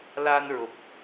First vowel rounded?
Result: no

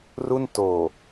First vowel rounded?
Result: yes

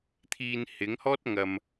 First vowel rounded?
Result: no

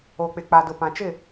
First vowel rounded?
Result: yes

